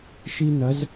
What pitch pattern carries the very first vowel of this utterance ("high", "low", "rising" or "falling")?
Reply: high